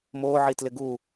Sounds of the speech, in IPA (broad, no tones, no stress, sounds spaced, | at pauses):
m o ʕ i t l ɪ ɡ u